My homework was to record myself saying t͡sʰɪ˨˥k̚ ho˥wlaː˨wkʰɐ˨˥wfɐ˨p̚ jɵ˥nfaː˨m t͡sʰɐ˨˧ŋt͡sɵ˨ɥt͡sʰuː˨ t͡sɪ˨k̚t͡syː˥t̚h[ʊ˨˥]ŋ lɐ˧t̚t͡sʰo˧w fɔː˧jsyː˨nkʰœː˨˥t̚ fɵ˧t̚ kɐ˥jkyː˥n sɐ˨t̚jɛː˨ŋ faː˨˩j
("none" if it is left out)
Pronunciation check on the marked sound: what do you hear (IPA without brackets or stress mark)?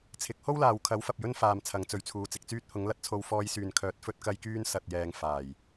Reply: ʊ˨˥